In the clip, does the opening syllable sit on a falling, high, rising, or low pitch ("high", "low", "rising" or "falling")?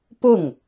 falling